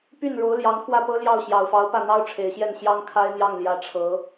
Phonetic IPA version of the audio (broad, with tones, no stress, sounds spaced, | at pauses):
p y˥˩ n ɻ o˧˥ ʊ̯ l j ɑ˧˥ ŋ kʰ w ä˥˩ p ɤ˥ l j ɑ˥˩ ʊ̯ ɕ j ɑ˨˩ ʊ̯ f ɑ˧˥ ʊ̯ p ä˥˩ n̪ ɑ˥ ʊ̯ ʈ͡ʂʰ e˨˩ ɪ̯ ɕ j ɛ˥˩ n ɕ j ɑ˥ ŋ kʰ a˥ ɪ̯ n̪ j ɑ˥˩ ŋ l j ä˧˥ ʈ͡ʂʰ ɤ˧˥